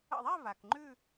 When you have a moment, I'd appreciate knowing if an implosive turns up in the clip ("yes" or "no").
no